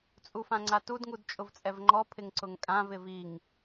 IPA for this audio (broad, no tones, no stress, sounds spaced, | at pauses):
t͡sʼ u f ã ŋ͡ǀ a t u d ŋ u d t͡ʃʼ ʊ v t͡sʼ ɛ v ŋ͡ǃ ɔ pʰ ɪ ŋ ǀ ʊ ŋ kʼ ã v ɪ v i ŋ